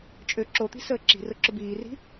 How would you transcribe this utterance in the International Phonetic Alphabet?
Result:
t͡ʃʼ ø ǁ o t̪ i̤ s əː ǁ i̤ r ʊ ǁ ʊ b iː r i̤

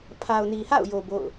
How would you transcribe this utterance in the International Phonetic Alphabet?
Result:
pʰ a˨ ʊ̯ n i˨ h a̰˦˨ ʊ̯ j o˨ b o̰˦˨ ʊ̯

